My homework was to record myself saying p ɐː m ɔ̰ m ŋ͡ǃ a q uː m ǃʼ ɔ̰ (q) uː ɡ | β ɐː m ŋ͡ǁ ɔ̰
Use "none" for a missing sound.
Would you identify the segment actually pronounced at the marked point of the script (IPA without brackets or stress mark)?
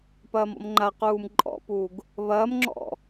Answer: p